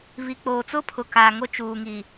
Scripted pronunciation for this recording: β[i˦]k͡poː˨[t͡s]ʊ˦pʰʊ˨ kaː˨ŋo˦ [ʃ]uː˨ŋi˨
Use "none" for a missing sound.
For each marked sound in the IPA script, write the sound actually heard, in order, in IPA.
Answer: i˨, t͡s, t͡ʃ

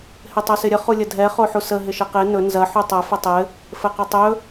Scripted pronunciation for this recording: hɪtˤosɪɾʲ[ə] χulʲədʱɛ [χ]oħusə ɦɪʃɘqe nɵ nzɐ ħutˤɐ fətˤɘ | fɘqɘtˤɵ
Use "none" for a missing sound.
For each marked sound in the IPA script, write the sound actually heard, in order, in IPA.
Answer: ə, χ

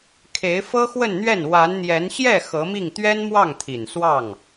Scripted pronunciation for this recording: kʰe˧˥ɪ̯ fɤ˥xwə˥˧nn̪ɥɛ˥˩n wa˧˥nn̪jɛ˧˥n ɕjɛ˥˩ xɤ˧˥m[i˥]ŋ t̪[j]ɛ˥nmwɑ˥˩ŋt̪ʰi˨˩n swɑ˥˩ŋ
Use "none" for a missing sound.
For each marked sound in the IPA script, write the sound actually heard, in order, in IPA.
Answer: i˥˩, ɥ

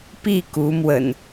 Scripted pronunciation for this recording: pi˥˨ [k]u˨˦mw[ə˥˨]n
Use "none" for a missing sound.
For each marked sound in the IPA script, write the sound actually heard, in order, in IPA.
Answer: k, ə̰˨˩

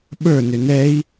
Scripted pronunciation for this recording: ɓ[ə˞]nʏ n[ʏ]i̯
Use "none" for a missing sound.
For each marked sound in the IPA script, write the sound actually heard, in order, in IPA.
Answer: ə˞, ɛ

